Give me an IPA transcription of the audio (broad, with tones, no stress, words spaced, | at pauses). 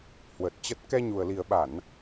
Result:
hwə˨˩t̚t͡ɕə˦˥t̚ kɛ˧ɲu˨˩ə̯li˨˩ə̯ɓa˧˩˨n